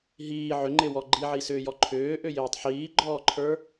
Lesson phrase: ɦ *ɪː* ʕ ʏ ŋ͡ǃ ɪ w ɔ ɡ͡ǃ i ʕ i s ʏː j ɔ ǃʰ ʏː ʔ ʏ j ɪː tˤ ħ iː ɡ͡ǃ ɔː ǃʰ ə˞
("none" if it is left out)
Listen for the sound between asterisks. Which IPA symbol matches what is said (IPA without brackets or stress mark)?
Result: iː